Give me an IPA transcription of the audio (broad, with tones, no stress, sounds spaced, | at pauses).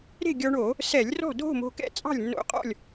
ɾ e̤˥˨ ɡʲ ɔ˧ ɳ o˧˩˧ | s ɛ˧˩˧ lʲ r ɔ̤˥˨ dʱ o̤˥˨ m o̤˧ k ɛ̰˥˨ t͡sʼ ɑ̤˥˨ lʲ nː o̰˧ qʼ ɔ̰˥˨ lʲ